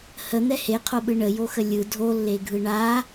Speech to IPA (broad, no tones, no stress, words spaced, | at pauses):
hən̪ɛ heqʰoɓɯ ɳəjoxə lʲɯ dʱolːeɡʱɯ ɳa